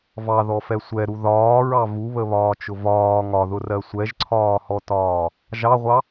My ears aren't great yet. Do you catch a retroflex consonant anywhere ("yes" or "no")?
no